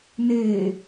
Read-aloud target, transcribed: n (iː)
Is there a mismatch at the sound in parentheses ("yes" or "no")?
yes